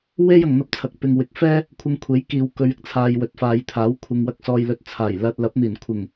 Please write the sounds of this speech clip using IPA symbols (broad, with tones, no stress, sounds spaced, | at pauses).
w e˥ j ɐ˨ ŋ n̪ ɐ˧ p̚ t͡sʰ ɐ˨ k̚ p ɪ˨ ŋ w ɪ˨˥ k̚ f ɛː˥ | kʷʰ ɪ˧ ŋ kʷʰ e˨˥ j k iː˨ w k ɵ˨˧ ɥ ɪ˧ k̚ t͡sʰ aː˨ j w ɵ˨˥ t̚ f aː˨˧ j t̪ʰ aː˨˥ w kʷʰ ɪ˨ ŋ w ɐ˧ k̚ s ɔː˨ j l ɵ˨ t̚ t͡sʰ aː˨˩ j l ɐ˨ t̚ l ɐ˨˥ p̚ n̪ iː˨˩ n kʷʰ ɪ˨˩ ŋ